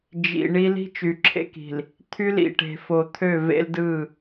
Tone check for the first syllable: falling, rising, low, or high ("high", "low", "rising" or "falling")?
low